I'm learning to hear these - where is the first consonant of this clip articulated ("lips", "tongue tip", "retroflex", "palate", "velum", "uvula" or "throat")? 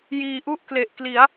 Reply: palate